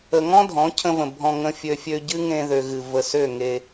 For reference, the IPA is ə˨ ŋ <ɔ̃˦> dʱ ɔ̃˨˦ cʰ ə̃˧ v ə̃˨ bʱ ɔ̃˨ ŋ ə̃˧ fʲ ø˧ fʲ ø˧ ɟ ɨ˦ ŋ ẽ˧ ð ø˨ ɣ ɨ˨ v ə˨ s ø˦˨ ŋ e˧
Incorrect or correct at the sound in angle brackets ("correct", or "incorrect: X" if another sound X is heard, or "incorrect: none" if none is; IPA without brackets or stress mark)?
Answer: correct